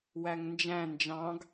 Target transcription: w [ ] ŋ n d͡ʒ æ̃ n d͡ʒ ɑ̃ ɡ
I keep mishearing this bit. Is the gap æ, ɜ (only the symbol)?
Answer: æ